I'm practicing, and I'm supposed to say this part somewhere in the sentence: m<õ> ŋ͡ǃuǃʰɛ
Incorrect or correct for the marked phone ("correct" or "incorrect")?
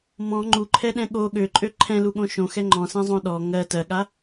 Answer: incorrect